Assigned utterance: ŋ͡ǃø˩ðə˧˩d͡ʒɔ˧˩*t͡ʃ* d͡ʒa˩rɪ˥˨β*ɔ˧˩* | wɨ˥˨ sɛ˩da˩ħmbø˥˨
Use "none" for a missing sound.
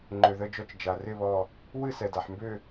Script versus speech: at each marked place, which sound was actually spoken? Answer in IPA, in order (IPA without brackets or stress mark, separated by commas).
t͡ʃ, ɔ˧˩